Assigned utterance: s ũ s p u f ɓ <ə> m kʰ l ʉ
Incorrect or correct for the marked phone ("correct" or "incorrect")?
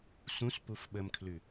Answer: correct